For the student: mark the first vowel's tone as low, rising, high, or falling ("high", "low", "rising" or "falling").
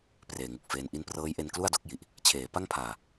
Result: low